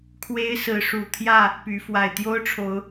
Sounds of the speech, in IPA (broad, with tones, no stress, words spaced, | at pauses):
kʰwe˦ɪ̯sɹ̩˨˦ ʂu˨˩t̪ʰjä˥˨ | py˨˦ fwa˨˩ɪ̯t̪jo˦ʊ̯ʈ͡ʂʰo˨˦ʊ̯